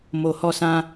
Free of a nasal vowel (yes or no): no